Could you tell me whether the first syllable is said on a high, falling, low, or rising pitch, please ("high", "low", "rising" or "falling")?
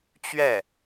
falling